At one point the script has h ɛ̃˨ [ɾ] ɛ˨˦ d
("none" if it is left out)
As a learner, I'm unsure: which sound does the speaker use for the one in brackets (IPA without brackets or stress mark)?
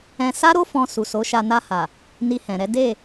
ɾ